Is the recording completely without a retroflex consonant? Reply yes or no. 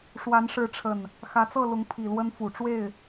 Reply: no